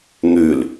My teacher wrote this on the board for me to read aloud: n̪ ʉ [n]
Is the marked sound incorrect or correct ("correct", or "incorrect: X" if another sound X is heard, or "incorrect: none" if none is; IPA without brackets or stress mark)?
incorrect: l